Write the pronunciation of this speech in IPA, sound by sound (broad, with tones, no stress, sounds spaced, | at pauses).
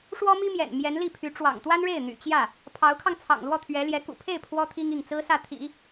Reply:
ʂ w ɔ˥ m i˥ m j ɛ̰˨˩ n m j ɛ˧˥ n l i˥˩ pʰ y˧˥ ʈ͡ʂ w ɑ̰˨˩ ŋ t̪ w a˥ n ɻ e˥˩ ɪ̯ n̪ y̰˨˩ t͡ɕ j ä˥˩ | pʰ ɑ˧˥ ʊ̯ kʰ ɑ˧ ŋ t͡sʰ ɑ̰˨˩ ŋ l w ɔ˥˩ t̪ʰ ɥ ɛ˧˥ l j ɛ˧˥ k ṵ˨˩ pʰ e˥˩ ɪ̯ pʰ w ɔ˥ t̪ʰ i˥ ŋ i˥˩ ŋ t͡s ɹ̩˥ s ä˥˩ t̪ʰ ḭ˨˩˦